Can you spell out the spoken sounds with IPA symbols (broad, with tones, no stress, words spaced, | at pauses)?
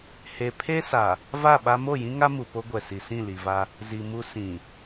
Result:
he˨ pʰe˦sa˨ | va˦˨ɓa˦ mo˦˨jĩ˦ŋa˦ mu˨po˦ɡʷɛ˨si˨ sĩ˦˨li˨va˦ | zi˨ mu˦ sĩ˨